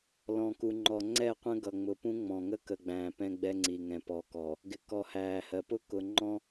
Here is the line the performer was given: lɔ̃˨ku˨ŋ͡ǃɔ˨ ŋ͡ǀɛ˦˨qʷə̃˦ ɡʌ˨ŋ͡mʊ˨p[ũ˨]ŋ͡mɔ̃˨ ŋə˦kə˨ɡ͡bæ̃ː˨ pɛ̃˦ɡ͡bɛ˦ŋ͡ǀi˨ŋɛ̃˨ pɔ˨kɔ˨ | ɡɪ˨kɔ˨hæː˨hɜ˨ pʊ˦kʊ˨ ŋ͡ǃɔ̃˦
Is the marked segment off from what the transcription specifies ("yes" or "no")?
yes